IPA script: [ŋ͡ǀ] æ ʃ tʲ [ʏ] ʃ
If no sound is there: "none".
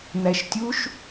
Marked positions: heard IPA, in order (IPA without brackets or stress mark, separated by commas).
n̪, u